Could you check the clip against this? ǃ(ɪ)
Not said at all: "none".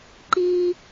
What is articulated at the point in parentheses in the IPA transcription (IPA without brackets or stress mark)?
i